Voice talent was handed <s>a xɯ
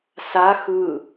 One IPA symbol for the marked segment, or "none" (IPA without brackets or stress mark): s